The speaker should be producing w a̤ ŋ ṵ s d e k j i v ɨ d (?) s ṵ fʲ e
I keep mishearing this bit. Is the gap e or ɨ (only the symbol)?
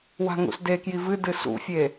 ɨ